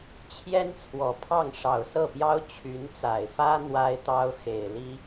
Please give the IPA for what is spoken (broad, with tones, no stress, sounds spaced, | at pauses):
t͡ɕʰ j ɛ˥ n t͡sʰ w ɔ˨˩ pʰ ɑ˥˩ ŋ ʂ ɑ˨˩ ʊ̯ s ɤ˥˩ p j ɑ˥ ʊ̯ t͡ɕʰ y˧˥ n t͡s a˨˩ ɪ̯ f ä˥ n̪ w a˥ ɪ̯ t̪ ɑ˥ ʊ̯ x e˨˩ ɪ̯ l i˥